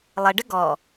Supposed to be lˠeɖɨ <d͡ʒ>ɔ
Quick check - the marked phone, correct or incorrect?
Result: incorrect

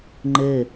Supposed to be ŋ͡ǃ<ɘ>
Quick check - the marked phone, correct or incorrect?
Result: correct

